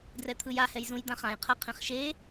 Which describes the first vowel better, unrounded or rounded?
unrounded